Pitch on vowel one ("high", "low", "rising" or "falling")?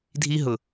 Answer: high